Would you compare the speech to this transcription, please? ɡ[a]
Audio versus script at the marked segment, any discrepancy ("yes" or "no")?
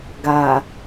no